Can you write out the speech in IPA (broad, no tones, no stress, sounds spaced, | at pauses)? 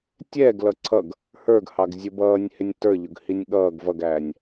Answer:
tʲ ɛː ɡ l ʌ ǀʰ ʌ ɡ | h ə˞ ɡ h ɑ ɡ zʲ ʊ b ʌː nʲ h ɪ nʲ t ə˞ ʎ ʊ ɡ h i nʲ ɠ ʌː ɡ v ʌ ɡ æː nʲ